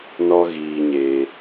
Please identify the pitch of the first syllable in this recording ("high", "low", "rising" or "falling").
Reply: high